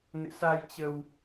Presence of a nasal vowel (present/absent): absent